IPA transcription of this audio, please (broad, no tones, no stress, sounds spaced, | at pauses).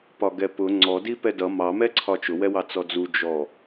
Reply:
p ɒ ɡ ɛ p ʊ ŋ͡ǀ ɔ d i p ɛ d ʌ m ɑ m ɛ ǀʰ ɒ t͡ʃ ʊ w ɛ w ɑ t͡s ɔ d͡z u d͡ʒ ɔ